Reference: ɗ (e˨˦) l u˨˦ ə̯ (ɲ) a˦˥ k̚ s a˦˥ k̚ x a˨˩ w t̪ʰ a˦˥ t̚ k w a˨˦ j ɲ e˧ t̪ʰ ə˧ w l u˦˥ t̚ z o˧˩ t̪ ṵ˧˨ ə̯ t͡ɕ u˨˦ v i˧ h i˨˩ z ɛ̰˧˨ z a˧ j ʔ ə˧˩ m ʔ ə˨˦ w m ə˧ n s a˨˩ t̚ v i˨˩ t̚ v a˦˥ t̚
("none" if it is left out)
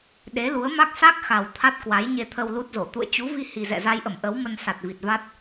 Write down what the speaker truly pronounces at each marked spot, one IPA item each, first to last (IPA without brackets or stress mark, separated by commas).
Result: e˨˦, m